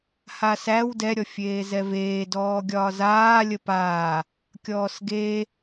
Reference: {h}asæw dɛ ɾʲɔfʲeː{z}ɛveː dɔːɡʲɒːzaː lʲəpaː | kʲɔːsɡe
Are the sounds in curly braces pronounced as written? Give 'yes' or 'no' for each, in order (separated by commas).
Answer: yes, yes